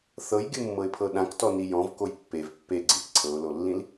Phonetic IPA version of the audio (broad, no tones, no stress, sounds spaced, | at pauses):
θ ɤ j ɡʲ ɯ mː ɤ ɪ̯ pʰ ɤ ɗ ã k t ɔ n i j ɔ̃ v k o j pː e v pː e ɡ͡ǀ ĩ k ǀʰ ɤ ʊ̯ l o lː ĩ l